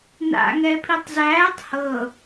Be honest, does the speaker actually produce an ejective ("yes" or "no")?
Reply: no